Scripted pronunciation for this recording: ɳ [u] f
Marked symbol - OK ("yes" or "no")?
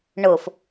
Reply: no